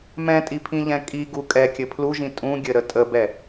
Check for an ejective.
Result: present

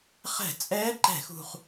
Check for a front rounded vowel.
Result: absent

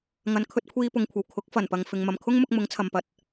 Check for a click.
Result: absent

